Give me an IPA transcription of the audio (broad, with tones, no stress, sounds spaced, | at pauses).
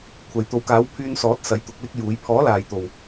kʷʰ ɐ˨ j t̪ o˨˥ w k aː˨˥ w pʰ yː˧ n s ɔː˨˥ t̚ s ɐ˨˥ j t̪ ʊ˨˥ k̚ l ɪ˥ k̚ j uː˨˥ j pʰ ɔː˨˥ l aː˨ j t̪ o˨ w